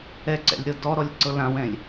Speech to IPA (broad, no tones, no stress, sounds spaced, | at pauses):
ɛ ǀ ɛ̰ lʲ ɾ ɤ d ɔ ɾ ɔ lʲ ǀ ɤ l ã w ɛ̃ lʲ